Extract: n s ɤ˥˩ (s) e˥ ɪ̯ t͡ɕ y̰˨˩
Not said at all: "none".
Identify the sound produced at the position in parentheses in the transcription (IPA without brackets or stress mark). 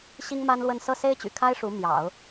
s